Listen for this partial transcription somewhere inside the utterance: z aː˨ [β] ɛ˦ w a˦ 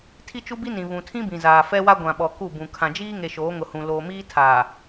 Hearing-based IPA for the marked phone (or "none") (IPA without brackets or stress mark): f